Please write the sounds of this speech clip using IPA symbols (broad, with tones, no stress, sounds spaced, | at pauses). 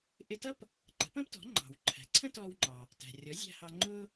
ʔ ɪ˧ t ʌ˥ p | ǃ ə̤˩˥ p ə̃ː˥ p t ɔ̤˩˥ ŋ͡ǃ ɑ̤˩ w ǃʰ æ̤˩˥ ǀʰ ə̃˥ t ɔː˧ w ŋ͡ǃ ɑ˩ | t æ̤˩ rʲ ɔ˩˥ zʲ æ̤˧ h ɑ˧ ŋ͡ǃ ʊː˥